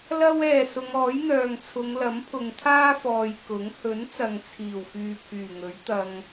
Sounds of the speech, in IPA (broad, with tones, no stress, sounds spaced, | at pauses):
l ɐ˥ w ɛː˨ s ʊ˨˧ ŋ ɔː˨˥ j n̪ œː˨ ŋ t͡sʰ ʊ˨˧ ŋ l ɐ˨˥ m pʰ ʊ˨ ŋ t̪ʰ aː˥ f ɔː˨ j k ʊ˨˥ ŋ h ɵ˨˥ n t͡s ɐ˨ ŋ t͡sʰ iː˨˩ w f yː˨ pʰ yː˨˩ ŋ ɵ˨˥ ɥ t̪ ɐ˧ ŋ